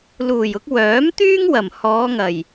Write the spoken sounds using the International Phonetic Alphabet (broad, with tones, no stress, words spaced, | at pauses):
luː˨˩jʊ˧k̚ wœː˨˥m t̪yː˥ŋwɐ˨˩m hɔː˨˧ŋɐ˨˩j